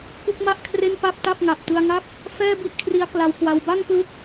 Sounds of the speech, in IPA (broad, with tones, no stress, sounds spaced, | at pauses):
k u˥˩ k̚ m a˥˩ ʔ kʰ r e˥˩ n p a˥˩ p̚ t a˥˩ p̚ ŋ a˨˩ p̚ t ɯ˧ a̯ ŋ a˥˩ p̚ | f ɛː˥˩ b i˥˩ ʔ kʰ r i˦˥ a̯ k l a˧ w k w a˧ w b a˥˩ ŋ k l u˦˥ k̚